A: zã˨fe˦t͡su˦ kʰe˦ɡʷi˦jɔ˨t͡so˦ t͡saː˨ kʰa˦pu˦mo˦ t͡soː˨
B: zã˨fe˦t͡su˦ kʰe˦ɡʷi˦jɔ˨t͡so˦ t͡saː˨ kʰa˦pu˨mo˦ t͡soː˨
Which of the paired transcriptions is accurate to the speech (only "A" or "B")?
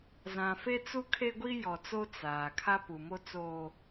B